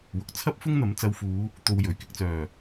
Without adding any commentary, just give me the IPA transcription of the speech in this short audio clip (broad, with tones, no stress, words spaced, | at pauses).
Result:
wʊ˨k̚t͡sʰɐ˥p̚ fʊ˥ŋn̪ɐ˨˥m t͡sɐ˨˧wfuː˨˧ | t̪o˧wjɵ˨˩ɥ kɪ˨k̚t͡sœː˨˩